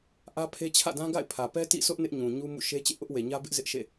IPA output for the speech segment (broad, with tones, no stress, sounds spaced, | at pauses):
ʔ ä˦ pʰ e˦ t͡ɕʰ ä̰˦˨ d ã˦ ɡ a̰˦˨ ɪ̯ pʰ ä˨ p ɛ˦ t ḭ˦˨ s ʊ˦ ʔ n ɪ˦ ʔ ɲ ũ˨ ɲ u˦ m ṵ˦˨ ʃ e˦ t͡ɕ ḛ˦˨ ʔ ʊ˦ ʔ w e˨ ɲ ä˦ b ɪ˦ ʔ z ɪ˦ ʔ ʃ ḛ˦˨